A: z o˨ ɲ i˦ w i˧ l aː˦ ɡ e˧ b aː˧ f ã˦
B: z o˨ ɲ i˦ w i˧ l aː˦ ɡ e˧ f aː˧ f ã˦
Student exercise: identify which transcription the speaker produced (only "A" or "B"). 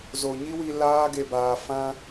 A